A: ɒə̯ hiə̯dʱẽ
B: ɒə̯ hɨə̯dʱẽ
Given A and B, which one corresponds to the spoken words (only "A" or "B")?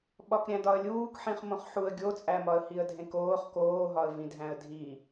A